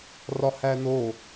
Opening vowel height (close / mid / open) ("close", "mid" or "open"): open